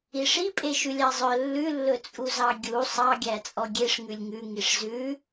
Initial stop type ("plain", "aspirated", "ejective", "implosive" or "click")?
ejective